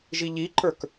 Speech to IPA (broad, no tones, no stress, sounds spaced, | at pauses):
ʒ i ʎ i ǃ ə˞ k